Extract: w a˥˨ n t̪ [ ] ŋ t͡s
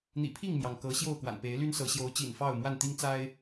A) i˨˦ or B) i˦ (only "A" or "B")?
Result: B